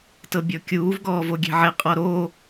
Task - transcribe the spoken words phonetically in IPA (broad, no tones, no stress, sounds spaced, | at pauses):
t ɤ bʲ ɔ kʲ uː v ɡ ɔː v o ɡʲ e̤ ʕ e qʼ ɔ ɾ o